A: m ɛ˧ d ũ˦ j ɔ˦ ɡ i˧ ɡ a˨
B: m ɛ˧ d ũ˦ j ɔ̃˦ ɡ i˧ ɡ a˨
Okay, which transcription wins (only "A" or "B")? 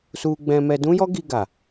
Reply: A